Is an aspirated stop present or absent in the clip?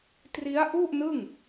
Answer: absent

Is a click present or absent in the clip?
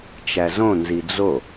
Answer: absent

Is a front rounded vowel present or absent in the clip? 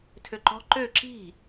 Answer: present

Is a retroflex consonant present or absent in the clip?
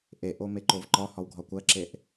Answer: absent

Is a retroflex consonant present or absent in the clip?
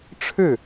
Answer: present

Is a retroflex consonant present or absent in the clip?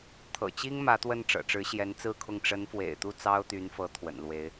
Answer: present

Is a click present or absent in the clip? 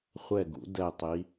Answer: absent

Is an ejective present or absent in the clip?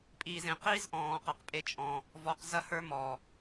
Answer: present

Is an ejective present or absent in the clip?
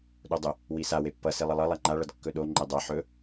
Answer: absent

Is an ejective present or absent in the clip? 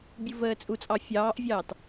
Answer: present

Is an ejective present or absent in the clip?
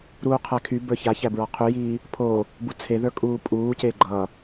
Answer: present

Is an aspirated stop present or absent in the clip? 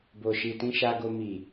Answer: absent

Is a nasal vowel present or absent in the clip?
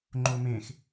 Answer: present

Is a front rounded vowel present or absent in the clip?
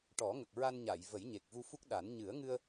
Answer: absent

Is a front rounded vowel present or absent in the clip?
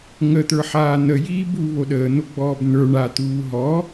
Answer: absent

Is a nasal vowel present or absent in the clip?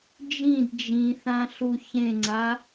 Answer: present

